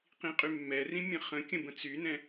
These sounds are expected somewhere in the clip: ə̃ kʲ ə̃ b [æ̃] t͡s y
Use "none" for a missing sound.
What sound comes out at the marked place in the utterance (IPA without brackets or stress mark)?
ə̃